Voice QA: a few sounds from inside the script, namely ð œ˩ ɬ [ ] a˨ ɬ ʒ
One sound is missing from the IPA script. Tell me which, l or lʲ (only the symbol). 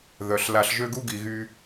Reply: l